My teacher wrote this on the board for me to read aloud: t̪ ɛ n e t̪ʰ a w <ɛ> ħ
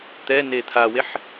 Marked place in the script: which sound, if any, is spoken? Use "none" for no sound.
e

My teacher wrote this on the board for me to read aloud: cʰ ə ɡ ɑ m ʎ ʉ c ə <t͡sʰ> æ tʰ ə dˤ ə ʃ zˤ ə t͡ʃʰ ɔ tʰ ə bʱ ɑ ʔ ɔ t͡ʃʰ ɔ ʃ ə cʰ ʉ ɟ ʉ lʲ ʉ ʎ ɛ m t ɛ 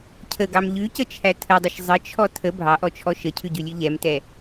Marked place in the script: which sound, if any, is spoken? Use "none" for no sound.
t͡ʃʰ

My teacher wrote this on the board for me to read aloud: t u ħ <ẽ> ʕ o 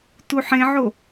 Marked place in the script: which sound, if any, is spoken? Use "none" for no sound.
ẽ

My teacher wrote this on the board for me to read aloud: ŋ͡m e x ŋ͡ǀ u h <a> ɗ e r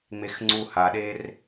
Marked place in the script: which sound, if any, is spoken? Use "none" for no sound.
a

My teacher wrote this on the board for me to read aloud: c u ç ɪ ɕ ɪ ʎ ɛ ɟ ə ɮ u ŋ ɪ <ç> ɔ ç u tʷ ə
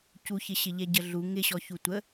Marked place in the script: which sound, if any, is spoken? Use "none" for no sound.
ɕ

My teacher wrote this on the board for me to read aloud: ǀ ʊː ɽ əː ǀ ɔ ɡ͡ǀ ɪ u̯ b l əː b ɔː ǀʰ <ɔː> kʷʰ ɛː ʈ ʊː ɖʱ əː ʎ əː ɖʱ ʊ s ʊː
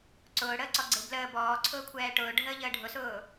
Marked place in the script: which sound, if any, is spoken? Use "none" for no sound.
ʊː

